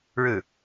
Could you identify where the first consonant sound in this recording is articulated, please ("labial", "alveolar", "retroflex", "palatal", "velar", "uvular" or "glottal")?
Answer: retroflex